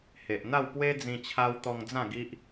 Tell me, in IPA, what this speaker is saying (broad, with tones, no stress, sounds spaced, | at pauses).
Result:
h e˨ ʔ n̪ a˥˧ w p w e˦ d͡z ĩ˧ t͡ɕʰ a˧ w t̪ ɔ˧ ŋ d͡z ã˥˧ ɡ i˦ ʔ